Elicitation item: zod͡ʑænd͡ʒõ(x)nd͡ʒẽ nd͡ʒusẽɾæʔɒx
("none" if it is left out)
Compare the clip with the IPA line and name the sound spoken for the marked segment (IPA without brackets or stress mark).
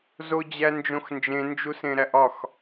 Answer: x